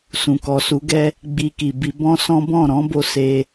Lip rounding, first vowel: rounded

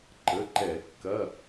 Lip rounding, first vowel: unrounded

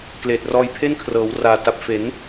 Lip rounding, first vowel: unrounded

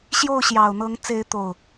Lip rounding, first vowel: rounded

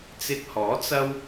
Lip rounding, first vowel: unrounded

